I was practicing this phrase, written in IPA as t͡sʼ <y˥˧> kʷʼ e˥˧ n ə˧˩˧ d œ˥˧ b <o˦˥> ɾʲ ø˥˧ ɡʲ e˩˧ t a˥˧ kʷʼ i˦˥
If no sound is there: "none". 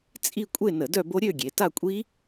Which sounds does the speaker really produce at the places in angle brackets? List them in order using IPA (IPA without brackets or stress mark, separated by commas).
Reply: i˥˧, o˦˥